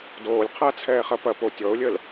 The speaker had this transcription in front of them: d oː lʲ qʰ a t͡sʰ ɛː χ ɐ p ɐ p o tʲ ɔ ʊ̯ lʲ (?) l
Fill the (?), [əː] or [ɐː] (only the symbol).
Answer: əː